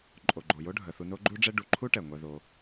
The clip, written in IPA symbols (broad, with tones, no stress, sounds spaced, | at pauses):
ǃʼ o˩ ɡ͡ǃ o˩ j o˦ ɖʱ ə˩ θ u˨ n o˦ ɡ͡ǃ u˦ ɖ͡ʐ ɛ˦ ɖ u˨ ǃʰ u˥ ʈ ɛ˩ ŋʷ ɛ˨ ð o˨